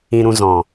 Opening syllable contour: low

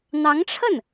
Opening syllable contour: rising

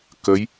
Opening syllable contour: rising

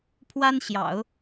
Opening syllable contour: high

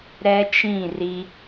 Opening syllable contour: high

